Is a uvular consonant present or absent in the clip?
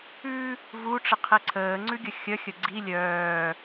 present